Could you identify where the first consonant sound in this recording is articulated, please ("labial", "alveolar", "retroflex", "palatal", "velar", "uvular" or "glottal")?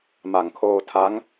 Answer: labial